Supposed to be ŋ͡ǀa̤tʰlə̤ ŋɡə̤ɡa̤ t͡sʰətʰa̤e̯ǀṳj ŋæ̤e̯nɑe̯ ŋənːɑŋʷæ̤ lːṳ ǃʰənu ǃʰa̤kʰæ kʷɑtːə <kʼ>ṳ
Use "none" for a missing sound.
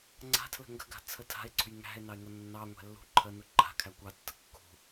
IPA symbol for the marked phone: kː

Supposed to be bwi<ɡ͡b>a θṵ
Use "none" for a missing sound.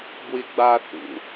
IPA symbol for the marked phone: ɡ͡b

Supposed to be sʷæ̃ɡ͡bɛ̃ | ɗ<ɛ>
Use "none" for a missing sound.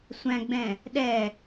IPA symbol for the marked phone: ɛ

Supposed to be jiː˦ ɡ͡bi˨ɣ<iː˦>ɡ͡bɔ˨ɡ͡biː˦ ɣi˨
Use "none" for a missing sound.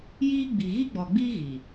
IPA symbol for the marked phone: i˦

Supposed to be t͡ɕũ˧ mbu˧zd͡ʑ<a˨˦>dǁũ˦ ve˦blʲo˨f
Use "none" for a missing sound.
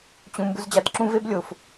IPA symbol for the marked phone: a˨˦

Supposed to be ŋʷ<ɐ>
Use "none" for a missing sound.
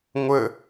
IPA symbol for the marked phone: ə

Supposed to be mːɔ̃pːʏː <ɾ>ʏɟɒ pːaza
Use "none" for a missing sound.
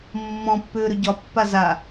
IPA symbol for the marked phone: ɾ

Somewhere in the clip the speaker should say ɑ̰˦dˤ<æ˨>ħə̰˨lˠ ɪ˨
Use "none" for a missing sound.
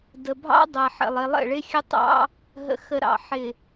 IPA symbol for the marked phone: æ˨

